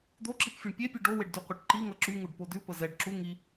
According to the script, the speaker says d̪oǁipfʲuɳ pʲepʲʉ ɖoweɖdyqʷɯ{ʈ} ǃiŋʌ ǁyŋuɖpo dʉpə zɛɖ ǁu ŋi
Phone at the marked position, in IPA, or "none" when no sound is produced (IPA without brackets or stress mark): ʈ